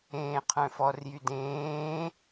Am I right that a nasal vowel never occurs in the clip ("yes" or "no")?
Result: no